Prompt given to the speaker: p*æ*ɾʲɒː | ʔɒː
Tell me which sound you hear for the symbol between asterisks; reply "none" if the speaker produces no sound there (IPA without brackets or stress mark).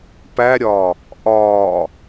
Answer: æ